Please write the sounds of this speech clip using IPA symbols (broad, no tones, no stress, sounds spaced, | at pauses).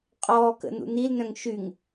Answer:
qʼ ɔː k ə̰ n ṵ n i l n œ̃ ŋ ʃ y ŋ